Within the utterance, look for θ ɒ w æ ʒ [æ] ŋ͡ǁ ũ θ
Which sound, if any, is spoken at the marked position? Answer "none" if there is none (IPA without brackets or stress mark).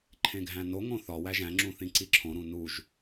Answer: æ̃